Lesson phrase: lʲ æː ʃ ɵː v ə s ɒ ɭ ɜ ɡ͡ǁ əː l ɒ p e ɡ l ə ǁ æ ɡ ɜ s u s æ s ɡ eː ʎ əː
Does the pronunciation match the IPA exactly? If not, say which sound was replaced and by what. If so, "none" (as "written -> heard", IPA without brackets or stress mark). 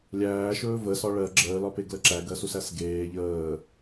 none